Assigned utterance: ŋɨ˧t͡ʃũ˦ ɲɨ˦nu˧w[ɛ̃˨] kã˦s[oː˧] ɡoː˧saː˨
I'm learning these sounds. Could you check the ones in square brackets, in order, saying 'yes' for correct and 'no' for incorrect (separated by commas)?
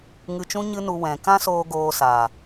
yes, yes